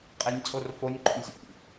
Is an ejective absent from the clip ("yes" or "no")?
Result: no